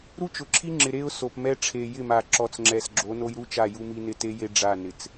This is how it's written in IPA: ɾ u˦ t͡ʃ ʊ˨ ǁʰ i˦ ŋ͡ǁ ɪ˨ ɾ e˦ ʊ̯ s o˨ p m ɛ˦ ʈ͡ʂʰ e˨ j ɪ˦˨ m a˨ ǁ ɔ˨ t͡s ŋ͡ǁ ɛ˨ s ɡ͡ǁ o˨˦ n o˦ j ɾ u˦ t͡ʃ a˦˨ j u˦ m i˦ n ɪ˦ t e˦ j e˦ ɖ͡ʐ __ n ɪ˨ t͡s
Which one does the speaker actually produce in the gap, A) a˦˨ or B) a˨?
A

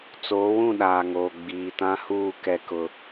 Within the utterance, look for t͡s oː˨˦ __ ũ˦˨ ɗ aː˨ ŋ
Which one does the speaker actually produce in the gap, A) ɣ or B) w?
B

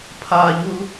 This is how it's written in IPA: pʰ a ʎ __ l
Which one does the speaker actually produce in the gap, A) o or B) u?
B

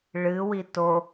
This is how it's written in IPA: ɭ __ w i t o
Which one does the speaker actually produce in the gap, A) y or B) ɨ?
B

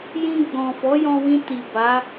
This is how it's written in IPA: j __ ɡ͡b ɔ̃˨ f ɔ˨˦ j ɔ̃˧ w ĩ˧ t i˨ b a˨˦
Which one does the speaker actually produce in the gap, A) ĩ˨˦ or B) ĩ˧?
B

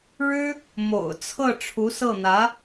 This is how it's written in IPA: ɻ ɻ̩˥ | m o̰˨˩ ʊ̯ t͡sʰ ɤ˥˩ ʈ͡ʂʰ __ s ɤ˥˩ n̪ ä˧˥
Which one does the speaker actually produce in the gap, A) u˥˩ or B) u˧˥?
B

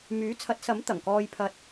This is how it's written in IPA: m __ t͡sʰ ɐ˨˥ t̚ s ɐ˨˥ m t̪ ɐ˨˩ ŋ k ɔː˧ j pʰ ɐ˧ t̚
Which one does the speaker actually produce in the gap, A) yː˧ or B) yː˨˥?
B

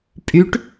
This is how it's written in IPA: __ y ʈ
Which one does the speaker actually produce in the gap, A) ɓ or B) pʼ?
B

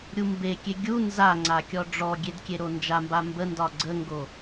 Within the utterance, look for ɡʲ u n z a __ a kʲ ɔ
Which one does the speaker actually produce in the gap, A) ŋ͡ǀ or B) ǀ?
A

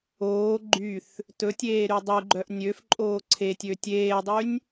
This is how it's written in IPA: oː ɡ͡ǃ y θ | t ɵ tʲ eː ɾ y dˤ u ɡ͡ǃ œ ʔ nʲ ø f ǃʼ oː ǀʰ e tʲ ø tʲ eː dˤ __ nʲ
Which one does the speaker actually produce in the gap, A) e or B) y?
B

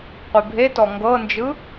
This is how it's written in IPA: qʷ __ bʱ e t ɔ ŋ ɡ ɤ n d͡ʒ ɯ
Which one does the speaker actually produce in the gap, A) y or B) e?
B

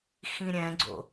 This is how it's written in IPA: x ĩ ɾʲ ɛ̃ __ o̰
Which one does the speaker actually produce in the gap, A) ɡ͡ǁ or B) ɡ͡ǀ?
B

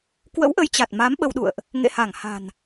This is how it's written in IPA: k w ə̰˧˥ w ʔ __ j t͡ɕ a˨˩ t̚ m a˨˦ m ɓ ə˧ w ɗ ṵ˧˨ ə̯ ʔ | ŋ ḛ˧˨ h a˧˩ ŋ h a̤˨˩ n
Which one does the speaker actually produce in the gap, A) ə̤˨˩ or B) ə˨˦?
B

